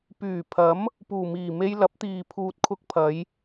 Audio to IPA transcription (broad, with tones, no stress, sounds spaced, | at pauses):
p yː˨˩ pʰ ɐ˨˥ m | p uː˨˩ m iː˨˩ m e˧ j l ɐ˨˥ p̚ t̪ iː˨ pʰ uː˨ t̚ kʰ ʊ˧ k̚ pʰ ɐ˨˧ j